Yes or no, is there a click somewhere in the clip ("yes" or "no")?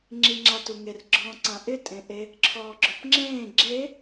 yes